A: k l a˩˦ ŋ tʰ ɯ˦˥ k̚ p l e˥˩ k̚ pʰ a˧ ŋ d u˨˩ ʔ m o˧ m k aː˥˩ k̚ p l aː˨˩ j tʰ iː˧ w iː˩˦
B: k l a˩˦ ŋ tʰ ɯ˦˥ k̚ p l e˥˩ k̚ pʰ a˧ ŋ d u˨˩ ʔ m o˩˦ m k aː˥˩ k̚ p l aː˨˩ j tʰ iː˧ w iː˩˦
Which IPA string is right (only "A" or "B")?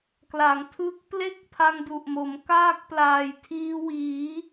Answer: B